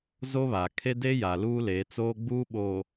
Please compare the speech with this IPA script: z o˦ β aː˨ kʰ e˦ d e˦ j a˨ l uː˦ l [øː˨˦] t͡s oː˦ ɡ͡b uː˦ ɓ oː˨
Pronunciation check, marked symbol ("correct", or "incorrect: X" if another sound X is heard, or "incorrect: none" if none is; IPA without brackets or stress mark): incorrect: eː˨˦